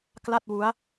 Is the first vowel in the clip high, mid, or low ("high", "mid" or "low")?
low